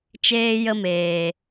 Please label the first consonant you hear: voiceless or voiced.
voiceless